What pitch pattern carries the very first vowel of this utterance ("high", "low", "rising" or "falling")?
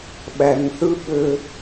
low